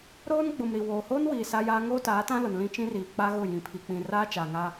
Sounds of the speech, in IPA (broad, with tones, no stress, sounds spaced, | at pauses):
ɾ oː˦ n ɡ͡b ʊ˨ m ɾ i˨ w oː˨ h oː˦ n w iː˨ s a˦ j aː˦ ŋ oː˦ t aː˨˦ t ã˦ l ʊ˨ n l ĩ˦ t͡ʃ ĩ˦ r iː˨ k͡p a˦ ɣ ʊ˦˨ j ĩ˨ pʰ i˨ k͡p ĩ˨ r aː˦ t͡ʃ a˨ ŋ a˦